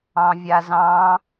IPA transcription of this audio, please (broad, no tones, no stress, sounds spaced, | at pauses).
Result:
ɑ̃ vʲ a z ɑ̃